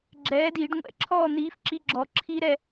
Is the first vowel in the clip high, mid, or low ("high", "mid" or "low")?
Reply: mid